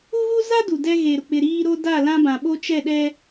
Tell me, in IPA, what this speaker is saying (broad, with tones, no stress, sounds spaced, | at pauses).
u˦ ɣ u˦ z a˦ d u˨ d ɛ˦ ɣ e˨ ɾ ʊ˨ k͡p ɪ˨ ɾ iː˦ ɾ o˦ d a˦˨ l ã˦ b ã˨ ɓ o˦ t͡ʃ ɛ˦˨ ɗ ɛ˦